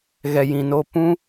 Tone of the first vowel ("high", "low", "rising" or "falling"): low